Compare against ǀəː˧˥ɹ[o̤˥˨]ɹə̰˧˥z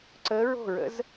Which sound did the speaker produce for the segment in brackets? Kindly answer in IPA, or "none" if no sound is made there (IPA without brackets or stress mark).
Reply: o̤˥˨